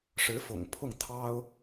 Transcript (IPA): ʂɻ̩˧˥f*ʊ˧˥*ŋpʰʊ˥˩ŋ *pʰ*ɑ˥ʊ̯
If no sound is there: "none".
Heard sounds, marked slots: ʊ̰˨˩, t̪ʰ

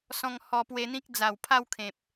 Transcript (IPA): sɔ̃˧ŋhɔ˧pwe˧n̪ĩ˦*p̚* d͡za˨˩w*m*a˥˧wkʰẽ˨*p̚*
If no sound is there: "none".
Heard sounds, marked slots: k̚, pʰ, p̚

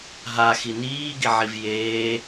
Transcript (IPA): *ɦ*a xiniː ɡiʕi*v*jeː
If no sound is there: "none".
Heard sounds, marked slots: ɦ, v

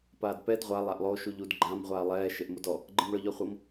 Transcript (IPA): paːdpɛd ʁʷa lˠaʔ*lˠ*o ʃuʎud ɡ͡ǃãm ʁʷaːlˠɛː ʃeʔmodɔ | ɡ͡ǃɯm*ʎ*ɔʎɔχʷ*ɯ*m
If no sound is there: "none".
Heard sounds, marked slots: lˠ, ɭ, ɤ

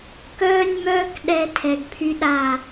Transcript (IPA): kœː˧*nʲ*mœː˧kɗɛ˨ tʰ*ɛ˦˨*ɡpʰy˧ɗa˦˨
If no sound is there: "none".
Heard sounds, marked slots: nʲ, ɛ˨

